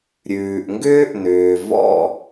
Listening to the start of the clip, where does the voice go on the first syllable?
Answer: low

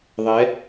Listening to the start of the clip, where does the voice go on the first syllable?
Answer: rising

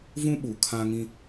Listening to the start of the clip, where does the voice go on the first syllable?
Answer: high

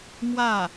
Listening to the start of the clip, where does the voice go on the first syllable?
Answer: falling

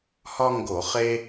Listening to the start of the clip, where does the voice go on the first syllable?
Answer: high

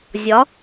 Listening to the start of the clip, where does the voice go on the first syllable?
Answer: rising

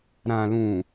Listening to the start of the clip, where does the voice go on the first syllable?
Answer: low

